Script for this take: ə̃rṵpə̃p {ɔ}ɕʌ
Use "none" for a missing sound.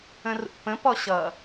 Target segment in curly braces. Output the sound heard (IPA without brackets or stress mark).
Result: ɔ